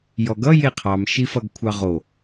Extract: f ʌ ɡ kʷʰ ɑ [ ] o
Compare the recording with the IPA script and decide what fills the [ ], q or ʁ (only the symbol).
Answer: ʁ